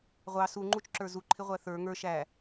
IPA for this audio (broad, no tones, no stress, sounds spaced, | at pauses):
ʁʷ ɑ s u ŋ͡ǃ u t͡ʃ ǁ ə˞ z u ǃʰ ɪ ʁʷ æ θ ə˞ ŋ ə˞ ʃ æ